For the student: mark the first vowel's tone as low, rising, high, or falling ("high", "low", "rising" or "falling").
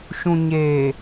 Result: low